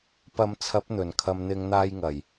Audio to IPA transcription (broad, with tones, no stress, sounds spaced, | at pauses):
p ɐ˨˧ m t͡sʰ ɐ˨˥ p̚ n̪ ɵ˨˩ n kʰ ɐ˨ m n̪ ɪ˨˧ ŋ n̪ aː˧ j ŋ ɐ˨˩ j